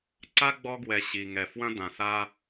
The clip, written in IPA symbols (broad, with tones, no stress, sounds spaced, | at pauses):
ǀ a˥ ɡ͡b ɔ˦ ɡ w ɛ˨ ɕ i˩ ŋ ɛ˩ f w ɐ̃˦ d ã˨ s a˦